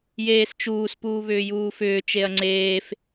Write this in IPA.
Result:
j eː s t͡ʃ uː s p uː β ʏː j uː f ʏː t͡ʃ e ɐ̯ ŋ͡ǀ eː f

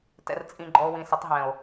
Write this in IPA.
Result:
t ɛ̰˨ r t͡sʼ ĩ˨ ɡ͡ǃ ɔ˨ o̯ w ĩ˨ s ɪ˨˦ tˤ ɦ ɛ̃˨ o̯

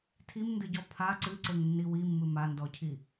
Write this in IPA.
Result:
tʰ i m n d ɨ ɟ ɔ pʰ a ǀ ɨ ǀ e ŋ nː i w i mː ɨ m a n d ɔ cʰ i

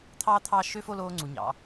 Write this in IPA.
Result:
t̪ʰ ɑː˥ t̪ʰ ɑː˥˧ ʃ ø˥˧ f o˥˧ l oː˧ ŋ͡ǀ u˩˧ ɲ ɑ̰˩˧

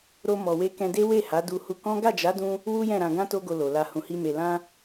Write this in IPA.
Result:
ɾ o˧ m ɔ˨ w e˧ k ɛ̃˧ d e˦ w e˦˨ h a˨˦ d u˧ h u˧ k ɔ̃˦ ɡ a˦˨ d͡ʒ a˨˦ d ũ˧ | w u˦ j ɛ̃˦˨ ɾ ã˧ ɡ ã˦ t o˦ ɡ o˧ l o˨ l a˧ h ũ˨ h i˧ m e˨ l ã˧

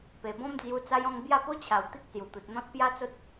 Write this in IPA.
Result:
p e˨˩ b ɔ̃˦ m d͡z j u˧ t͡s a˧ j ɔ̃˧ ŋ b j a˥˧ p o˦ t͡ɕʰ a˨˩ w t̪ i˦ k̚ s j u˨˩ t̪ u˨ t̚ n̪ ɔ̃˦ t̚ p j a˦ t͡s o˦ t̚

